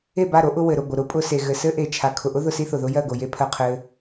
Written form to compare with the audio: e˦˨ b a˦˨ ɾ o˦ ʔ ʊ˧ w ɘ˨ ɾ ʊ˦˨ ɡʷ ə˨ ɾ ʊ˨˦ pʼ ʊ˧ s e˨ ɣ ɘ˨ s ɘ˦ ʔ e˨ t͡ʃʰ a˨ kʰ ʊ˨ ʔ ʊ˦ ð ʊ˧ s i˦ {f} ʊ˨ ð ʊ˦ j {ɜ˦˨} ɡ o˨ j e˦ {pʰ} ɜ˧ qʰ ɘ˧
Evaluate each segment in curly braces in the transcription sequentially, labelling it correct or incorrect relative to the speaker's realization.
incorrect: θ, correct, correct

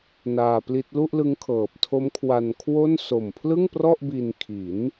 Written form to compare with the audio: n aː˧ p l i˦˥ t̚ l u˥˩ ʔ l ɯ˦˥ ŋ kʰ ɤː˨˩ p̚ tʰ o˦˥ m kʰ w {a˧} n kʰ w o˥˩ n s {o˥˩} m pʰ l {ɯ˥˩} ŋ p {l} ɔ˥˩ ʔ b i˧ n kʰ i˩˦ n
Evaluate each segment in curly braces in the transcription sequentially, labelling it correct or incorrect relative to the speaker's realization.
correct, incorrect: o˨˩, correct, incorrect: r

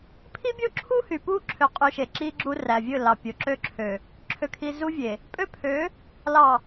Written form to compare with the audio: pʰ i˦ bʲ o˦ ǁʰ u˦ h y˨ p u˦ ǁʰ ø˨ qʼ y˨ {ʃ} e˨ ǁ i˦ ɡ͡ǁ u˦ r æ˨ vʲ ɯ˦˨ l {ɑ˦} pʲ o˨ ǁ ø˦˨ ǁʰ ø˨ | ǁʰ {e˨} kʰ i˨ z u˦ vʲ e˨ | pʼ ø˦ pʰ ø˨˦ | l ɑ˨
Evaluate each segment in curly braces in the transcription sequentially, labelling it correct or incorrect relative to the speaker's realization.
correct, incorrect: ɑ˨, incorrect: ø˨

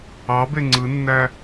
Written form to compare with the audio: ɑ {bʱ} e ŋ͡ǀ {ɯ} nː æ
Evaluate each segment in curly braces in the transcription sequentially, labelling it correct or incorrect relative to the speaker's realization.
incorrect: b, correct

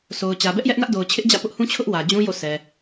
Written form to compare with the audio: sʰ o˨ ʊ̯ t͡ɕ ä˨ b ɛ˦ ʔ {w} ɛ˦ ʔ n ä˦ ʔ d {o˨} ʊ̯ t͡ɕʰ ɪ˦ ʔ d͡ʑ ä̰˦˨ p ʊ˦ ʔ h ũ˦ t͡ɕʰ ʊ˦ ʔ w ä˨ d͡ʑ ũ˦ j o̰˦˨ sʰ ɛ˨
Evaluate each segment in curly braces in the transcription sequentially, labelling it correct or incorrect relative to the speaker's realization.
incorrect: j, correct

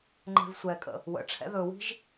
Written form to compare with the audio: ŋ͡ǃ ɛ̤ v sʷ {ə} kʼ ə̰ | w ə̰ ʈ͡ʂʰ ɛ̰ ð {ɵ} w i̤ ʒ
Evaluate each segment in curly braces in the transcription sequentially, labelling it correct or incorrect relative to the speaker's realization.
incorrect: ɛ, correct

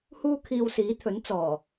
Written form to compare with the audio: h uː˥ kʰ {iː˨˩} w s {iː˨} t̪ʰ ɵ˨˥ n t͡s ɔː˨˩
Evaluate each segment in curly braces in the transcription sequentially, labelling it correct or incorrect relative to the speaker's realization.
incorrect: iː˧, incorrect: iː˨˥

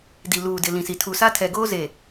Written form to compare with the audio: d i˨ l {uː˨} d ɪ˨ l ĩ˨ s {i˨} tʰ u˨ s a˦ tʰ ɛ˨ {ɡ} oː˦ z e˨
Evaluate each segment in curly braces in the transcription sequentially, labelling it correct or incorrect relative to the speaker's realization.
correct, correct, correct

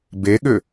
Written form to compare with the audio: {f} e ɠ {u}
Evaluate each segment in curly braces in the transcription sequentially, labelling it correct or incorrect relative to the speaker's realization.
incorrect: b, incorrect: ʏ

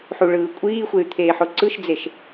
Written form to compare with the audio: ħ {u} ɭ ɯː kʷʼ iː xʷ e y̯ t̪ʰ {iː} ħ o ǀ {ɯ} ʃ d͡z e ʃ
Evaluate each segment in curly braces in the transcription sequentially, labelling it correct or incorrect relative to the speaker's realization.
correct, incorrect: eː, correct

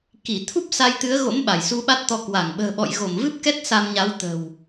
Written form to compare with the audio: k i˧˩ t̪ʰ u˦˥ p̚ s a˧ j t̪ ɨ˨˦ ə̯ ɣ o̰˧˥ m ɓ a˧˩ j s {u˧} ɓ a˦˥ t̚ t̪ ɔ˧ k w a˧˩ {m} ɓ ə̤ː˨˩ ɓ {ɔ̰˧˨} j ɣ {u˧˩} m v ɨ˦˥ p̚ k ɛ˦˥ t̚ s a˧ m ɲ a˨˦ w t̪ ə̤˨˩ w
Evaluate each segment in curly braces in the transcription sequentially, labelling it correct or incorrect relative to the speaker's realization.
correct, incorrect: ŋ, correct, incorrect: o˧˩

